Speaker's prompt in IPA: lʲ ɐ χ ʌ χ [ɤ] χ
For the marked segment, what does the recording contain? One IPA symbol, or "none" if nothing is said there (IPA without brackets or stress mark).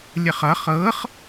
ɤ